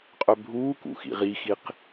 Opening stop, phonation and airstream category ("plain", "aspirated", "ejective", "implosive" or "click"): ejective